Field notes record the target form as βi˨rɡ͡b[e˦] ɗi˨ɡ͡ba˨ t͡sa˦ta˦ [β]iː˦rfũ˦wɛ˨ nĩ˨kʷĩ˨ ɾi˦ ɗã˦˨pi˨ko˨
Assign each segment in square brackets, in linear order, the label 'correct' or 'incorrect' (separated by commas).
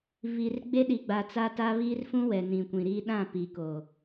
correct, correct